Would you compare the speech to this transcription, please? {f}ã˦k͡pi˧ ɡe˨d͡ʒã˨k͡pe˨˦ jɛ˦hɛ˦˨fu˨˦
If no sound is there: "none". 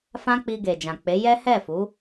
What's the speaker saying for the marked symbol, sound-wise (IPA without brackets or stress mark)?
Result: f